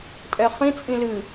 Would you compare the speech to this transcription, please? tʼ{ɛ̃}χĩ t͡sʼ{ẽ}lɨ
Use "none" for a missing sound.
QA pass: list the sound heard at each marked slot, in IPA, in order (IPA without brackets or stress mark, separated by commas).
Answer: ɛ, ĩ